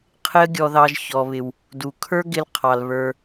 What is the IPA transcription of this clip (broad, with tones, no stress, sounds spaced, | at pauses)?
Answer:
qʰ ɪ˥ ə̯ ɡʲ ɔ˧ ð ɑ˧ ʒ ç ɔ˩ β ɪ˩ w | d u˩ kʰ ə˞˥ ɡ ɪ˧ l qʰ ɑ˩ l β ə˞˩